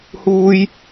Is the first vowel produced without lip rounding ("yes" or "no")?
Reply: no